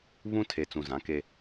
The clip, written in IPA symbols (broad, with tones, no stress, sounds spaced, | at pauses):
β ũ˦ tʰ e˨ t͡s ũ˨ z ã˨˦ k e˦